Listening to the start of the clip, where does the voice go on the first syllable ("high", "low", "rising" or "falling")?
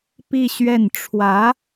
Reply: falling